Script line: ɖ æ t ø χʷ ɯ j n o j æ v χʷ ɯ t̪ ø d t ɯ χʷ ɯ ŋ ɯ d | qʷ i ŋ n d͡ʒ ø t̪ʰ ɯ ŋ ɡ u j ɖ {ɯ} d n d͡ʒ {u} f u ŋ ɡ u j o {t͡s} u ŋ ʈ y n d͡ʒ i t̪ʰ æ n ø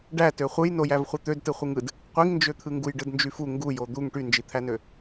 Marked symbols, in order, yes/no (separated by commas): yes, no, no